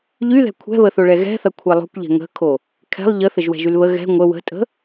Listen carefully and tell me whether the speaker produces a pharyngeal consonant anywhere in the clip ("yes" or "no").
no